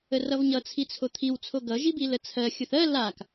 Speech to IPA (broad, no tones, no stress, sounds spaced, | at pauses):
ə r ʌ v ɲ ʌ t͡sʰ i t͡sʰ o t̪ʰ i w t͡sʰ o ɡ ʌ ʒ i b i l ə t͡sʰ ɜ xʲ ɵ θ ɜ l a k